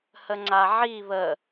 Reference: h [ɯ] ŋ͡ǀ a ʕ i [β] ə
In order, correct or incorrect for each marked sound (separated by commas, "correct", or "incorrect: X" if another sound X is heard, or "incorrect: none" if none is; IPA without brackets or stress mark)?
incorrect: ə, correct